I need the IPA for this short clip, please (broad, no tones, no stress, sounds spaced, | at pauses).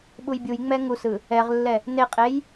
ɓ u j bʲ u j ŋ͡m ɛ ŋ u s ɯ | ɛ ʁ lː ɛ | n e qʼ e j